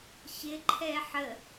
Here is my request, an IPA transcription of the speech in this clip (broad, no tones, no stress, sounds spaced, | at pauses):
ç ɪ ǃʰ ɛ ħ ə